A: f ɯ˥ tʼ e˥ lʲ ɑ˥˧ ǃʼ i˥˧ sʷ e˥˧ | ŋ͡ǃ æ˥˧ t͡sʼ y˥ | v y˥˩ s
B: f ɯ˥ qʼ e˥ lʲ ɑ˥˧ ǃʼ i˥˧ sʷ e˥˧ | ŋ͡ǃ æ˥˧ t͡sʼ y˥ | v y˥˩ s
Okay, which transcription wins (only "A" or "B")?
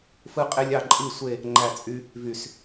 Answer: B